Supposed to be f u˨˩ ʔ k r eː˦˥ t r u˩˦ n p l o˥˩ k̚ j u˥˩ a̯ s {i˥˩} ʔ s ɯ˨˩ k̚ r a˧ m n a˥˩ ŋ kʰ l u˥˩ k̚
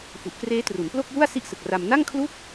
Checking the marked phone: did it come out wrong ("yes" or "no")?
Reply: no